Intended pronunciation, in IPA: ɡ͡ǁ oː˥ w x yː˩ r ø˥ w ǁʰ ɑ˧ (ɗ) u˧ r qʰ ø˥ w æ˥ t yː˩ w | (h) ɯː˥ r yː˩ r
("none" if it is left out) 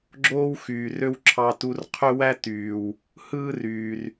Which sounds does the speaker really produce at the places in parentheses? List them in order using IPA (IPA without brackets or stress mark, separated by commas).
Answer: t, h